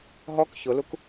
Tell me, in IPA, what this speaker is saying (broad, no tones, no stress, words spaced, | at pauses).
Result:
ɦɔk çʊluk